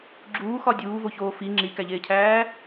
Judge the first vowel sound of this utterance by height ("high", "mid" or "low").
high